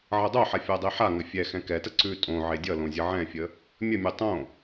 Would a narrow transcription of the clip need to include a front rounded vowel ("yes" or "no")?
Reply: no